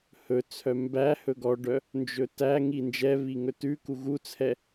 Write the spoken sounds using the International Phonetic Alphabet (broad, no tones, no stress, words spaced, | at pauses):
hɵt͡sʰœ mbæ hɵɡɔɖœ | nd͡ʒɵtæŋi nd͡ʒɛβi ŋɵtʉku ɣut͡sʰɛ